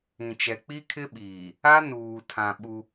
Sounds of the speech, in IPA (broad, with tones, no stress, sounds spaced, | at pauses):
ĩ˨ t͡ʃ ɛ˨ k͡p i˦ kʰ ɪ˦ ɓ iː˨ | a˦ n uː˨ tʰ ã˨ ɓ u˦